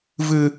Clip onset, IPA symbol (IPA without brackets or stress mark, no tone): v